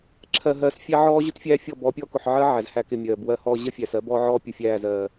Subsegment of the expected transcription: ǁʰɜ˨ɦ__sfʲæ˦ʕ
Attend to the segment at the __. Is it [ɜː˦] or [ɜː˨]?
ɜː˨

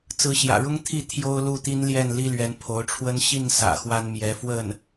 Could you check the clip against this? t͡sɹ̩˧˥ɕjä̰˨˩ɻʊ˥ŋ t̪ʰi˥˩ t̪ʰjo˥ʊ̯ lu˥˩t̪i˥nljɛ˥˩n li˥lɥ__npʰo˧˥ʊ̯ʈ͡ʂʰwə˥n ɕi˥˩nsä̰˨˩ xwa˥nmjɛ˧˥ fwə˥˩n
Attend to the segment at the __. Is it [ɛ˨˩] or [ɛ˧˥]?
ɛ˧˥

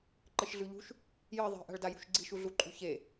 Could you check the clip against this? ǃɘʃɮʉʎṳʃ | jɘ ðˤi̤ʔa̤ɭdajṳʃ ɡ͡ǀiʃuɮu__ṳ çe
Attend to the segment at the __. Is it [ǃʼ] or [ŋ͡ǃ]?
ǃʼ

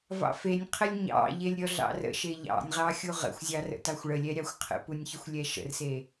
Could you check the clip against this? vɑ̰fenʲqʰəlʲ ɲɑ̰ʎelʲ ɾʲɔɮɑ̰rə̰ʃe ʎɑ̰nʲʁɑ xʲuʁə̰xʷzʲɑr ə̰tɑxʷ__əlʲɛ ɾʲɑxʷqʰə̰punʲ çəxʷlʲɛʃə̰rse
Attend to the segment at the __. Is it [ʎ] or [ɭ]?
ɭ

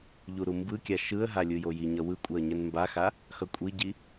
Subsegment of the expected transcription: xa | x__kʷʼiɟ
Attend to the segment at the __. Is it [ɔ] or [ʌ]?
ʌ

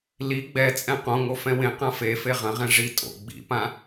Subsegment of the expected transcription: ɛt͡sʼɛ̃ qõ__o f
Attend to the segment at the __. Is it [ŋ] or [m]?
ŋ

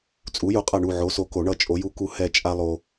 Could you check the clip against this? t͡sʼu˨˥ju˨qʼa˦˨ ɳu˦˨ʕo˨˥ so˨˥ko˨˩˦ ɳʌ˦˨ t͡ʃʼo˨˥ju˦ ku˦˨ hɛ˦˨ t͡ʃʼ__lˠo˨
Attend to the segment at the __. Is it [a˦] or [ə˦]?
a˦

